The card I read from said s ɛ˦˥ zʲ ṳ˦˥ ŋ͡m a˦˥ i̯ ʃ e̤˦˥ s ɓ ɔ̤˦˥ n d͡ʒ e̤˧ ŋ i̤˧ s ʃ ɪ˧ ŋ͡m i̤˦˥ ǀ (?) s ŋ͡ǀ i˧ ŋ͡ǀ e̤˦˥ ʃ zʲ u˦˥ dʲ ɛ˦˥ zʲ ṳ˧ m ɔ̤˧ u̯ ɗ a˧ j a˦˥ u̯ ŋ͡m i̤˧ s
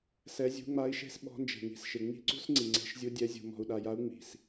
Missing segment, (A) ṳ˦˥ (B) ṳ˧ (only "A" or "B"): A